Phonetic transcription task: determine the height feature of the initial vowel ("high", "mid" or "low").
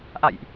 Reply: low